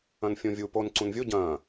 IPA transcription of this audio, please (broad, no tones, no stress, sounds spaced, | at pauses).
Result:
ɐ̃ n fʲ õ vʲ u p o n ǀ ũ n vʲ o ɟ ɐ̃ː